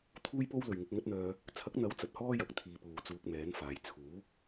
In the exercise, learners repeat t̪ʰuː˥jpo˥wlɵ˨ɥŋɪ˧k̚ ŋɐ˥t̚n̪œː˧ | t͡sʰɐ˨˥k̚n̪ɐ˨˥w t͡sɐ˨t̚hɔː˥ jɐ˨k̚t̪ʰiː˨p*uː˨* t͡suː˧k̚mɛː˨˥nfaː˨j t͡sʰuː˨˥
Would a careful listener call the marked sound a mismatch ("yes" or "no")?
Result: no